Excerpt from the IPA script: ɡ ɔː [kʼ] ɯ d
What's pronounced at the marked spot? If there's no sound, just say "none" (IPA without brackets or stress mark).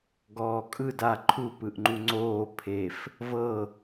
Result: kʼ